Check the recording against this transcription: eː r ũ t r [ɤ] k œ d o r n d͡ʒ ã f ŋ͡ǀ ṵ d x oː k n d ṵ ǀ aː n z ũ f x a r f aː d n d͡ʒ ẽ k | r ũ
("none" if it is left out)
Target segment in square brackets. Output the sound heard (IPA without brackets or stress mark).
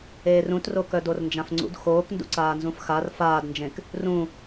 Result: o